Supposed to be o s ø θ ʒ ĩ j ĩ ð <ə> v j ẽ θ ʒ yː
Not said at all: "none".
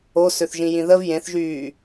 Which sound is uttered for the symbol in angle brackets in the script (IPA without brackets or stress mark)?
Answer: ə